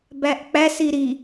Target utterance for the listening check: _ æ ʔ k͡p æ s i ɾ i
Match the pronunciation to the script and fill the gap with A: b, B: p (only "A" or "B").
A